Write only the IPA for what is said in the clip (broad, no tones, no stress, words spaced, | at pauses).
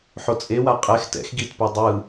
ħot͡sʼewa qʼɛx tɛ̰x ɡitpo dˤɯ